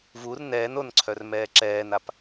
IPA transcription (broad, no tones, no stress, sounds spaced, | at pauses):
v u r n ɛː n o n ǀʰ œ r m ɛː ǁ ɛː n a p